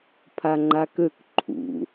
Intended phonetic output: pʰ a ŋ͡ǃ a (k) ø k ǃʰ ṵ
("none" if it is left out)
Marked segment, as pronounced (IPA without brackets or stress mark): k